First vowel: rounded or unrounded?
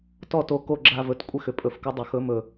rounded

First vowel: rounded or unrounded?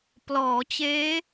rounded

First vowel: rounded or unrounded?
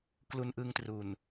rounded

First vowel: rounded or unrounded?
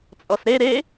rounded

